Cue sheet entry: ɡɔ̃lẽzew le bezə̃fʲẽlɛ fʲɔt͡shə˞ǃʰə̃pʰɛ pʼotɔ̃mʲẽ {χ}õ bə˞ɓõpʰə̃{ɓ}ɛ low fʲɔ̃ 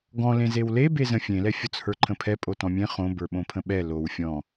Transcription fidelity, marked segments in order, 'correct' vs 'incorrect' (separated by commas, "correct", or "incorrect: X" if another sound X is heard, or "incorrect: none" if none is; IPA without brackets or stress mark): correct, correct